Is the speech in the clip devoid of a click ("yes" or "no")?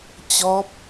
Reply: yes